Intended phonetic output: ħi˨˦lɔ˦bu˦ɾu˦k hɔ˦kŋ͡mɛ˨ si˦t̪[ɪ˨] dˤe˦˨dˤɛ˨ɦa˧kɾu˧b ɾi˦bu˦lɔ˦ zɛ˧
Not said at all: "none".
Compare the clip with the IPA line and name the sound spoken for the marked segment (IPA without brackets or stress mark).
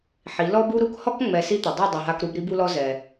ɪ˨